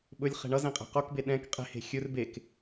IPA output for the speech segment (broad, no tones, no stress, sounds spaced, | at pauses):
ɓ ɵ lʲ χ e̤ ɳ ʌ z ẽ qʼ e̤ q o k b e ɗ ɛ̃ k qʼ e̤ h e̤ xʲ ɵ r b e k